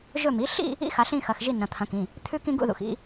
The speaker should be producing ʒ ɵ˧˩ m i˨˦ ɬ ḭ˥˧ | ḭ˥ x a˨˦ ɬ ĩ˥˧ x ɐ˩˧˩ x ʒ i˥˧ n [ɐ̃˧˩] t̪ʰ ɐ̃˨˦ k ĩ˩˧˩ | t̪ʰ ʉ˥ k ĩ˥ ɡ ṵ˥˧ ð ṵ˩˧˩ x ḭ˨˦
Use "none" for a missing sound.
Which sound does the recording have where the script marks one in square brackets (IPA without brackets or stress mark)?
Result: ɐ̃˩˧˩